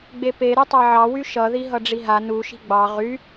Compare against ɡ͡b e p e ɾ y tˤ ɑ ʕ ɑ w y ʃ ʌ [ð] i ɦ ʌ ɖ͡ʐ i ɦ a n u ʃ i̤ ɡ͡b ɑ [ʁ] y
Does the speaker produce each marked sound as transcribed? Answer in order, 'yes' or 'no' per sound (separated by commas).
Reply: yes, yes